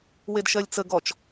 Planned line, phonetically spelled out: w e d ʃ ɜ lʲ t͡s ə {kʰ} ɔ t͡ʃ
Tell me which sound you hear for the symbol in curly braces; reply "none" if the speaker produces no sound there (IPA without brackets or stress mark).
ɡ